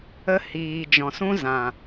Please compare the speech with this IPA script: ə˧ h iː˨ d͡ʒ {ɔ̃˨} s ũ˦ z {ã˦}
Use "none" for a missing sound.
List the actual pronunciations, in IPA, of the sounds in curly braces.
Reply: ɔ̃˨, ã˨

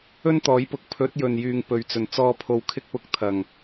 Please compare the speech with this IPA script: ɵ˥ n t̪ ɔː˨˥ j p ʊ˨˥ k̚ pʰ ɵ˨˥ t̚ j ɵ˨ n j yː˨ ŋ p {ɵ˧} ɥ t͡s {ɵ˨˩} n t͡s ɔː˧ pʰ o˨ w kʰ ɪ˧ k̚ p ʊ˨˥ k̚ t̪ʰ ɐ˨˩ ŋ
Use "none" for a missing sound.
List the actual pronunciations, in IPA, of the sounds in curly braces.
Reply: ɵ˨, ɵ˨˩

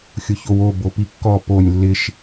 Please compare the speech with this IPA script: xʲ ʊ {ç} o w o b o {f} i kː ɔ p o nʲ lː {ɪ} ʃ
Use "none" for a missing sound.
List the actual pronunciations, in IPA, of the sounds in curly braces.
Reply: ç, p, ɪ

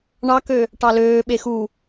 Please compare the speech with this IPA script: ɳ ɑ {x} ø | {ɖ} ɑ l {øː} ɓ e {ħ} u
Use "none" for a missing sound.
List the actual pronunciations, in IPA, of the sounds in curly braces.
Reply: k, ʈ, øː, x

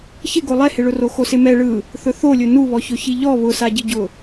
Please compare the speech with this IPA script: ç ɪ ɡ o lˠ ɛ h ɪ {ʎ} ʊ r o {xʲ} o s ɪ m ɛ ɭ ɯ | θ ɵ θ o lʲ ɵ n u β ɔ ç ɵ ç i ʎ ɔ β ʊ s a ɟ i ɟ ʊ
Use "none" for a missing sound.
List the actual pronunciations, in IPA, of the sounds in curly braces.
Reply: ɭ, x

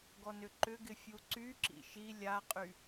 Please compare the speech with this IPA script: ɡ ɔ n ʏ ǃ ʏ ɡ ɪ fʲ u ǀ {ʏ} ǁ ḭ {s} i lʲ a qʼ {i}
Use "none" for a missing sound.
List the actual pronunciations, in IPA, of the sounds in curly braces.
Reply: y, ʃ, y

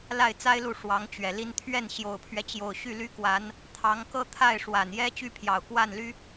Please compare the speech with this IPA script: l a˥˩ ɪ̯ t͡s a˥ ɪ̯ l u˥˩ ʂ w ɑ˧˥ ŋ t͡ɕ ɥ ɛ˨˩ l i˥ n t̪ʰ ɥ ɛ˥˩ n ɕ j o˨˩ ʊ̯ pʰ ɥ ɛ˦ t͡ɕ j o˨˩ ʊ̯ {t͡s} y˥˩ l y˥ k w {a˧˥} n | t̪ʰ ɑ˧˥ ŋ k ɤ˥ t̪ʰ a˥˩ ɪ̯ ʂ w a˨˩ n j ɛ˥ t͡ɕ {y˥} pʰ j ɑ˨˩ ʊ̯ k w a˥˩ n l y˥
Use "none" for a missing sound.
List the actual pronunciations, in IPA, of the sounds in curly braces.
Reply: ɕ, a˧˥, y˥

